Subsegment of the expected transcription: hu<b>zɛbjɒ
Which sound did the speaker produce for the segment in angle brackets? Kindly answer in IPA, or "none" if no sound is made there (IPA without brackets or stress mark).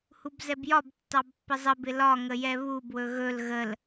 b